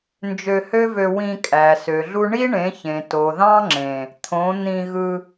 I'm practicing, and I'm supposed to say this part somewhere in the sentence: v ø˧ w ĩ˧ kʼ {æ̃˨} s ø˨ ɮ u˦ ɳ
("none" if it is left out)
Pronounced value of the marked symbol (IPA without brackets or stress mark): æ˨